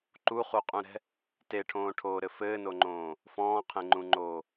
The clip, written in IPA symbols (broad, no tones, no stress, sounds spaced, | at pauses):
ǃ u χ u qʼ ũ ɾ ɛ̤ | t e ʈʰ õː ʈʰ oː ɾ ɘ f ɘː n o ŋ͡ǃ õː | f ɔ̃ː qʰ ẽ ŋ͡ǃ ũ ŋ͡ǃ oː